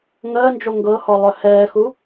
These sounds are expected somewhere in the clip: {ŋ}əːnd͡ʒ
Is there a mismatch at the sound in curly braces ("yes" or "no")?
no